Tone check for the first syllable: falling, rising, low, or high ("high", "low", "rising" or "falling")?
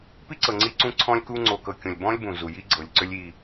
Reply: high